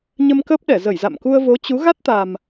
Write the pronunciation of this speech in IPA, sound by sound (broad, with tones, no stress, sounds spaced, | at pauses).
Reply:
ɲ ə˧ m k əː˦˥ p̚ ɗ ɛ˧˩ z ə˧˩ j z a̰˧˨ m k u˧ ə̯ v o˨˦ t͡ɕ u˨˦ ɣ a˦˥ t̚ t̪ a˨˩ m